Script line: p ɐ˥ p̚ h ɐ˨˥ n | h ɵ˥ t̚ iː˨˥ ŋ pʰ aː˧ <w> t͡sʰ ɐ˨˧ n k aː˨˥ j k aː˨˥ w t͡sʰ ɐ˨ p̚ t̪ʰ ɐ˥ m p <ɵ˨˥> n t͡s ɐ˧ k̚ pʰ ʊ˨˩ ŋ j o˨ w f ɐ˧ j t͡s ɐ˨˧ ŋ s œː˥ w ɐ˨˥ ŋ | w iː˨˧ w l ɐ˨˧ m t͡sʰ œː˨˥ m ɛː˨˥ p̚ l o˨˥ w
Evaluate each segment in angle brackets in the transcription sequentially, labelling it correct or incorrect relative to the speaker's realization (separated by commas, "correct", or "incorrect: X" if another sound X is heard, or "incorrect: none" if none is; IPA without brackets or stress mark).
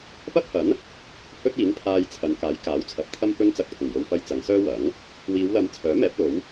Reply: incorrect: j, incorrect: ɵ˥